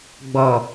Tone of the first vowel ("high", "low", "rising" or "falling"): low